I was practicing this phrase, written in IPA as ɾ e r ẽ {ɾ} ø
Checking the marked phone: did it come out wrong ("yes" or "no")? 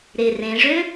yes